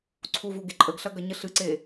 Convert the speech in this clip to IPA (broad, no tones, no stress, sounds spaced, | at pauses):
ǀʰ u v u ɡ e ǃʼ ə ɡ ɬ ɐ ɡ ɐ ɲ ə ɬ ɨ ǀ e